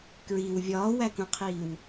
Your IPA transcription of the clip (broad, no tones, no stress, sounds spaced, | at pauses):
k ɹ i w vʲ ɒː w æ k ũ qʰ iː w